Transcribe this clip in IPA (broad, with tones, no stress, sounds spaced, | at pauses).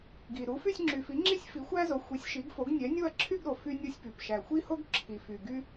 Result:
ɡ i˨ ɾ u˨˥ f y˥˧ sʲ ŋ͡ǁ y˨ f i˨˥ ŋ͡ǁ i˥ sʲ f i˨˥ xʷ æ˥ z o˨˥ xʷ i˨˥ sʲ ʃ i˨˥ ɡ f o˨˥ ɡ nʲ ɛ˨˥ nʲ o˥˧ ɐ̯ ǁʰ y˥˧ ɡ ɾ o˨ f y˥ nʲ o˥ sʲ p y˨ p ʃ æ˨ xʷ i˥ h o˥ ɡ ǁʰ i˨ f y˨ ɡ y˥